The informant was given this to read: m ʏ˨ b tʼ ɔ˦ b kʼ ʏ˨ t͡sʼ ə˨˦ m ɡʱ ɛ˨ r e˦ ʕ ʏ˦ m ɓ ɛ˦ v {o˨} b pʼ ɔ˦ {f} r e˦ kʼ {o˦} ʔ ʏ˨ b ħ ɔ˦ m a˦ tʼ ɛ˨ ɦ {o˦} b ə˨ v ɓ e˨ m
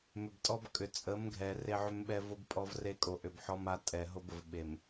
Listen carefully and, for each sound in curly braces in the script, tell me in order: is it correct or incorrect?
incorrect, incorrect, incorrect, correct

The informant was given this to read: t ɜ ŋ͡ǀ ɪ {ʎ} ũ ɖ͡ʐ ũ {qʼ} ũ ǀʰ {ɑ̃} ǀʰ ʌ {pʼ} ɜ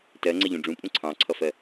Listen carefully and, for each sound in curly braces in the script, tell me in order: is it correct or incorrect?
correct, incorrect, correct, incorrect

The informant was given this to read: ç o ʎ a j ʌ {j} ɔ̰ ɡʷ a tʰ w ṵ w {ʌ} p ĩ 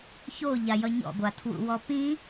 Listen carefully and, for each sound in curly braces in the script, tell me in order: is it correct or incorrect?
incorrect, incorrect

